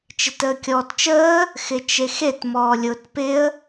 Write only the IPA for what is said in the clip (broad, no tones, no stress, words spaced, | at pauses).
t͡ʃɪtəːkʲɔːtt͡ʃəː | xɪt͡ʃexet mɔːlʲʊːtpɪə̯